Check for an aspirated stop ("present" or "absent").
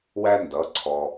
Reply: present